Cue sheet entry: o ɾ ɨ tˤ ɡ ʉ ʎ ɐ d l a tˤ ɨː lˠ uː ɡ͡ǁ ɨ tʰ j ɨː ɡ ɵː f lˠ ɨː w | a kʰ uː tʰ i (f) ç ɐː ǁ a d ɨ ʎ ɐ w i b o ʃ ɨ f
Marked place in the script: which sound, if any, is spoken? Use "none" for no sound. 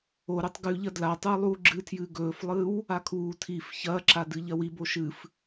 f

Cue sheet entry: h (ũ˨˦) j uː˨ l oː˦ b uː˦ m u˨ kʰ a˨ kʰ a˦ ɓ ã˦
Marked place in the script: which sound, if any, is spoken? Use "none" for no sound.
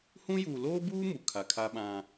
ũ˦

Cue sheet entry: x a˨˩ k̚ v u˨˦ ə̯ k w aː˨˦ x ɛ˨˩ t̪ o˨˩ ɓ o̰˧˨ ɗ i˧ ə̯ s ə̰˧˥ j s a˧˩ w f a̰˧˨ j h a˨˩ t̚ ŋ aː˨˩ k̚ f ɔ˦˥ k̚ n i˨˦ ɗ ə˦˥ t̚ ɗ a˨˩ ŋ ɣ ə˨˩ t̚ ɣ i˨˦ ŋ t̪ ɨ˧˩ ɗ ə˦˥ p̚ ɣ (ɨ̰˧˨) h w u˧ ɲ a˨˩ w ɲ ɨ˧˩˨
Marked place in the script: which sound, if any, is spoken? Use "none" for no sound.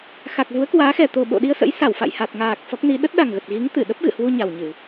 ɨ̰˧˨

